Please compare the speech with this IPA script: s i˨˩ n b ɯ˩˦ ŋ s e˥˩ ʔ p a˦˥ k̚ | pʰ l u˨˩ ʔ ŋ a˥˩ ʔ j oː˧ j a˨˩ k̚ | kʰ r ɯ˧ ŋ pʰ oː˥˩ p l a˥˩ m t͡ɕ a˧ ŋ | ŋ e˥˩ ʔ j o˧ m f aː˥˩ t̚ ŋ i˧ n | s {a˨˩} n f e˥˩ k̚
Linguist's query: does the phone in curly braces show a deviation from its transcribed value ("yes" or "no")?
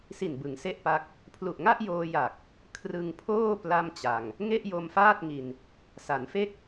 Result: yes